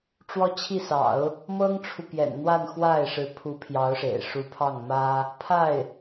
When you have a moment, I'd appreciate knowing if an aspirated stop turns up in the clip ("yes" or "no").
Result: yes